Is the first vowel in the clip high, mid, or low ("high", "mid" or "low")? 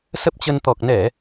mid